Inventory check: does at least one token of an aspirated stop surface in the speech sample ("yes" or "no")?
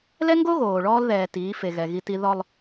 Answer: no